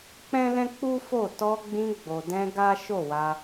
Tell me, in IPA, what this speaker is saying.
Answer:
k͡p ɛ̃˦ l ɛ̃˦ k͡p u˦ f o˦˨ t ɔ˧ ɡ͡b ĩ˧ ɡ͡b o˨ d ɛ̃˧ ɡ a˦ ʃ o˦˨ w a˧

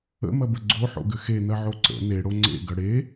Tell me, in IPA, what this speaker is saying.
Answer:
ə̰ m ɐ b ə ɡ͡ǀ o ħ o̰ ɡ ʏ x e n ɐ ʕ o ǀ ə̰ n e ɽ o ŋ͡ǀ ḛ ɡ ɐ ɽ e

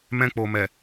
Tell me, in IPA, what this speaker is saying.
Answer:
m ɛ̃˧ k͡p o˨ m ɛ˨

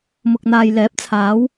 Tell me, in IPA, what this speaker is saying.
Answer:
m ʊ˨ k̚ n̪ aː˨ j l ɛː˨˥ p̚ t͡sʰ aː˨˧ w

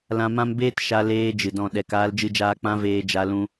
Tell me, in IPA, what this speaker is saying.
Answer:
l ã˧ m ã˦ m b eː˦ t ʃ a˧ l eː˧ d͡ʒ ɨ˨ d ɔ̃˦˨ ɗ ɛ˧ k aː˦ l d͡ʒ ɨ˦ d͡ʒ aː˦ k͡p ã˧ v eː˧ d͡ʒ a˧ l ũ˧

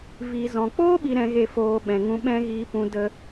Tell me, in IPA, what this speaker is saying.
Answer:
v iː˨ z ɔ̃˨ k͡p oː˦ ɓ i˨ ɾ ɛ̃˨ ɣ e˨ f oː˨ ɓ ɛ̃˨ ŋ ũ˧ ɓ ɛ̃˦ ɣ iː˧ p ũ˧ d ə˧

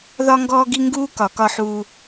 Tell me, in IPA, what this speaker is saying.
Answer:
ð ɒ˦ ŋ ɡ ɔː˦ ɡ i˦ ŋ ɡ uː˦ k ɒ˨˦ k ɒ˦ ħ uː˦

